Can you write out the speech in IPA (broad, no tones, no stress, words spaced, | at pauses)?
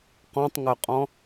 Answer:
qɔ̃tˤŋœqʼɔ̃